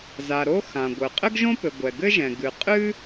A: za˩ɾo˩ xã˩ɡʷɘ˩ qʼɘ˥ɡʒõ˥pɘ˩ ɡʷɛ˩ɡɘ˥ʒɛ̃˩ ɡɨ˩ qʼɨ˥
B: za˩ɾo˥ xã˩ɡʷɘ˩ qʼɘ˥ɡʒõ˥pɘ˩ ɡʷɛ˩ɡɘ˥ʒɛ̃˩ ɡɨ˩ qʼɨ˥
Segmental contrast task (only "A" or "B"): B